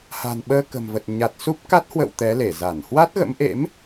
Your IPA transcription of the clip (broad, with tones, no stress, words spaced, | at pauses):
ha̤˨˩nɓəː˧kə̤˨˩mvə˨˩t̚ ɲa˨˩t̚ su˦˥p̚ka˦˥t̚ hwə̰˧˨w t̪ɛ˨˦le˧˩za˧˩n hwa˦˥t̚ɣə̰˧˥mʔḛ˧˥m